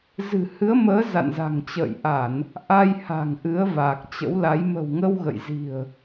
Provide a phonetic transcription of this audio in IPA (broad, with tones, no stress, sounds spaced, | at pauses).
z ɨ̤˨˩ h ɨ˨˦ ə̯ m əː˨˦ z a̰˧˨ n z a̤˨˩ ŋ t͡ɕ ə̰ː˧˨ j ʔ a˧˩˨ n | ʔ a˧ j h a̤˨˩ ŋ ʔ ɨ˨˦ ə̯ v a˨˩ k̚ t͡ɕ ə̰˧˥ w l a˨˦ j m ə̤˨˩ w ŋ ə˧ w ɣ ə̰˧˨ j z i̤˨˩ ə̯